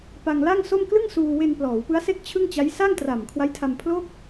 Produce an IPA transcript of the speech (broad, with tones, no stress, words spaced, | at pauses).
pa˧ŋla˥˩ŋso˥˩m klɯ˥˩ŋsuː˧ we˧nplɔː˩˦wpɯ˦˥a̯se˥˩k̚ t͡ɕʰɯ˥˩ŋt͡ɕa˦˥j sa˥˩ŋtra˨˩mkʰwa˦˥jtʰa˧m pʰlo˥˩k̚